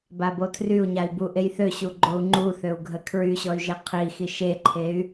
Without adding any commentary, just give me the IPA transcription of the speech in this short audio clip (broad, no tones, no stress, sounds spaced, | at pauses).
b a b o tʰ r y u̯ ɲ a i̯ b u ʔ e j θ ø ɕ u ɡ͡ǃ o u̯ ŋ͡ǃ u θ ø u̯ ɡʱ ə kʰ ɹ y ɕ ɔ y̯ ʒ e qʰ i x i ʃ e ǃʰ e y̯